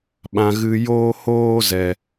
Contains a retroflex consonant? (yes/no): no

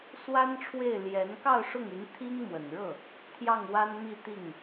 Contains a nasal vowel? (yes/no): no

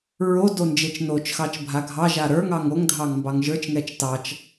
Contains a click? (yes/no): no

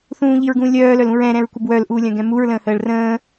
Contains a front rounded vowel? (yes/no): yes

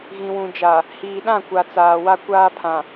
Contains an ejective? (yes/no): no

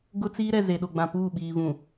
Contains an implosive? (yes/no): yes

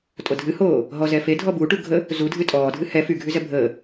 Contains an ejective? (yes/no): yes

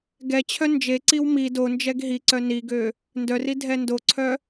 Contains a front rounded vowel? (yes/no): yes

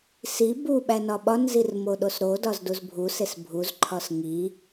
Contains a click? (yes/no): yes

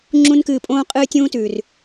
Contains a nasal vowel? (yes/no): yes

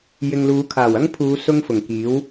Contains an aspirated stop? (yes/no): yes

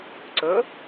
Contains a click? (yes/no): yes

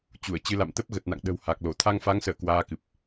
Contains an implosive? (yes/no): yes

